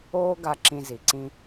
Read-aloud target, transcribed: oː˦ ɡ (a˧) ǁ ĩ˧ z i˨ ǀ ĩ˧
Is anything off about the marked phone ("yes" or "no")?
no